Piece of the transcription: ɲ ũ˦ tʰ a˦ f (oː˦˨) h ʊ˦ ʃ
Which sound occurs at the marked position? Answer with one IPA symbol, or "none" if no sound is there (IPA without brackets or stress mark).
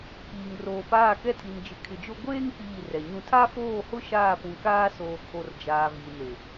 oː˦˨